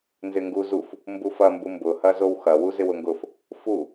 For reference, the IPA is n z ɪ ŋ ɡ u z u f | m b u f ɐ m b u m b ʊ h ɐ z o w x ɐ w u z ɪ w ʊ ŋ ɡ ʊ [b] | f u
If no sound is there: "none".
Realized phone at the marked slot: f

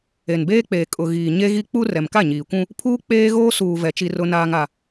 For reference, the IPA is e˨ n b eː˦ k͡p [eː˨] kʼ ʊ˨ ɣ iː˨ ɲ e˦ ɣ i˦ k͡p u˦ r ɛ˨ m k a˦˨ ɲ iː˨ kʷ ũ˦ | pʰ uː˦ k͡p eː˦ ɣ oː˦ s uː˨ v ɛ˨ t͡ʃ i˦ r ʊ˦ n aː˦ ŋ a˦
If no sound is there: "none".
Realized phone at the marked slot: eː˨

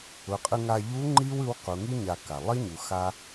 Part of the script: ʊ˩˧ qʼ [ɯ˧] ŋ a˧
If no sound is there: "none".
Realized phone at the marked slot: ɯ˧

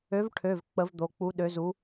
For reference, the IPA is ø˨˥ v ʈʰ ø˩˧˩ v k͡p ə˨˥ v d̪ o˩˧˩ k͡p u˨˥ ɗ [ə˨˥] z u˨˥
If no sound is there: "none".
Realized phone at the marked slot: ø˨˥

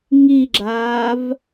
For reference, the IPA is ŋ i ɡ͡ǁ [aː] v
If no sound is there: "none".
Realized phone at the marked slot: aː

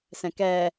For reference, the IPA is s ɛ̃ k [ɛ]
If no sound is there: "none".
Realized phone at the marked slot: ɛ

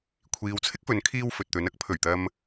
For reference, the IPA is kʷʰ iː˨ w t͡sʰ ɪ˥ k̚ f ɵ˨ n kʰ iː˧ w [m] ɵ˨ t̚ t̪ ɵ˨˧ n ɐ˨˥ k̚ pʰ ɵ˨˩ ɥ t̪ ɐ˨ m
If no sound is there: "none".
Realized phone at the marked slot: f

